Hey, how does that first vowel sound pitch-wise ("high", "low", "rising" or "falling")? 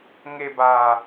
low